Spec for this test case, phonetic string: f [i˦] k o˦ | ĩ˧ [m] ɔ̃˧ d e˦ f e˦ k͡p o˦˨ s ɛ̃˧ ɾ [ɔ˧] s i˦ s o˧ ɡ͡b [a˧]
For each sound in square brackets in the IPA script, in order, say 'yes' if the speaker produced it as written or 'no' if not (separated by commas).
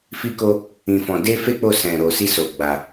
yes, no, no, yes